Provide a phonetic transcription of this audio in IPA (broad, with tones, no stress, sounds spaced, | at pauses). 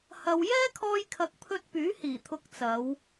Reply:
h ɐ˧ w j ɛː˥ kʰ ɔː˧ j kʰ ɐ˨˥ k̚ pʰ ɵ˧ t̚ p yː˨˥ h iː˨˩ t̪ʰ ʊ˨˥ k̚ t͡s ɐ˨˧ w